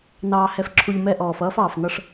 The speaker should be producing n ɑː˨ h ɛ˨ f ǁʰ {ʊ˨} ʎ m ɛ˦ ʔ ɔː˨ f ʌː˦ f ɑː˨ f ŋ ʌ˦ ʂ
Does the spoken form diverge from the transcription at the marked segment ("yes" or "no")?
yes